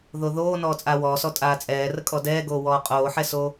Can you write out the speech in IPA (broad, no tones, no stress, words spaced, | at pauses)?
ðoðoː nɔːt͡sʼaːwɔːsɔ tʼaːt͡sʼɛːrə kʼɔdɛːɡoː wɔːqʼoːħɛso